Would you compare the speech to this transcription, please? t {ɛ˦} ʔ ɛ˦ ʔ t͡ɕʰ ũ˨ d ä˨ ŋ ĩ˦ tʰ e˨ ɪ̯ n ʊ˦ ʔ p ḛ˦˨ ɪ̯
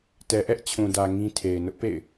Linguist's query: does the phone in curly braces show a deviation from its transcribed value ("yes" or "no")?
yes